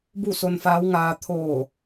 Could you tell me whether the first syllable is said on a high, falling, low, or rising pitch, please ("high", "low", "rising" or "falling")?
falling